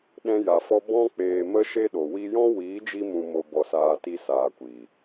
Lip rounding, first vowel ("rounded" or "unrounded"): unrounded